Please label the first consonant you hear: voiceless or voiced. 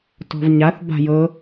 voiceless